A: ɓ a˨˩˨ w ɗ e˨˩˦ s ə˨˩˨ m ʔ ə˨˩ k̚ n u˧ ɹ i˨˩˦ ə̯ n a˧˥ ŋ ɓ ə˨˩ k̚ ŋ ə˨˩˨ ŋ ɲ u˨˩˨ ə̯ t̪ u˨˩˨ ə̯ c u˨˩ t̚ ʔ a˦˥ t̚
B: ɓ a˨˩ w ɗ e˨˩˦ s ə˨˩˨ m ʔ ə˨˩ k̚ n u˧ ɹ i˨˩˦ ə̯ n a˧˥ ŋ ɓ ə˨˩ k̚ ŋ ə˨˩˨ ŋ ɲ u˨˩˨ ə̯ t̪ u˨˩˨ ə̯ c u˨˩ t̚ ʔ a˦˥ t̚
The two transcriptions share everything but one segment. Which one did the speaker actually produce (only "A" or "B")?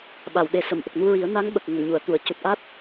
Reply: A